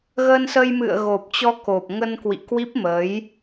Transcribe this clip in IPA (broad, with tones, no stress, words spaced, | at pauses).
ɣəː˧nsə˧jmɨ̰˧˨ə̯ ɣo˨˩p̚t͡ɕɔ˧ ko˨˩p̚ŋə˧nkwḭ˧˨ kwi˦˥p̚mə˨˦j